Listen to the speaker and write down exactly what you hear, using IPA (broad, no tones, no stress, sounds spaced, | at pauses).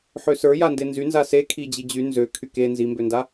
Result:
ħ ø s ə˞ j a n d e n z y n z a s e kʰ i d͡ʑ i d͡ʑ y n z ø kʰ y k e n z i m b ø n d a